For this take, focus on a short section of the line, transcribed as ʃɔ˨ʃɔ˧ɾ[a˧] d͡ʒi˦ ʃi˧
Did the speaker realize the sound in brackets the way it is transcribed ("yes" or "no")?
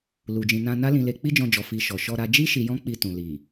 yes